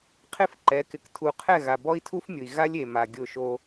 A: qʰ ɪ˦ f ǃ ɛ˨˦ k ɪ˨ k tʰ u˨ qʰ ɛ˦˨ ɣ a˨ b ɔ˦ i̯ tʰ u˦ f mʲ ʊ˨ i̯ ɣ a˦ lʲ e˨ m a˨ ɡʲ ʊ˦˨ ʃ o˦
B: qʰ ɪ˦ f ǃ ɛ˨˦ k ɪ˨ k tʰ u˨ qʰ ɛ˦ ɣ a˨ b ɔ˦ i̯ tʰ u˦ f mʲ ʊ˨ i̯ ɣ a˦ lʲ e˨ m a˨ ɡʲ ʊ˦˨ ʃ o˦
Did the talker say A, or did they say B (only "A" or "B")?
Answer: A